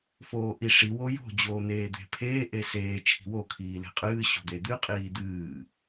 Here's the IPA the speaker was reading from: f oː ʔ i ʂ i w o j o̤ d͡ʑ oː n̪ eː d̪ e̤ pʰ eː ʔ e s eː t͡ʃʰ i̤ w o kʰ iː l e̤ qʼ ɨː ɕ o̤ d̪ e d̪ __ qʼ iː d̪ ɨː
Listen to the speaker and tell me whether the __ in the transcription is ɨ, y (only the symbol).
ɨ